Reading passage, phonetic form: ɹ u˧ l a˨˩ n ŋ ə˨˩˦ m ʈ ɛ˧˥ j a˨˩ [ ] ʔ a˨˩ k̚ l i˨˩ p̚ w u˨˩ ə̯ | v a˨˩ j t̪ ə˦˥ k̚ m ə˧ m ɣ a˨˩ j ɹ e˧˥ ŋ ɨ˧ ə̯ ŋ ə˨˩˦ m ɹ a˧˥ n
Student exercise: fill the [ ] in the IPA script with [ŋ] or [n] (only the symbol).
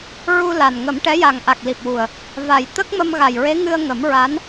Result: ŋ